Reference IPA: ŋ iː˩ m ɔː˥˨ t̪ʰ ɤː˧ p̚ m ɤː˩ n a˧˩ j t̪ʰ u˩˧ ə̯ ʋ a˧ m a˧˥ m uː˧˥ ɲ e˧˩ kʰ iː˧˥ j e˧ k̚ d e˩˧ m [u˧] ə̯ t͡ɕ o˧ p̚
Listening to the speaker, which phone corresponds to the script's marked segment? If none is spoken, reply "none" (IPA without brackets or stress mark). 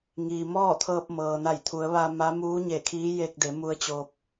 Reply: u˧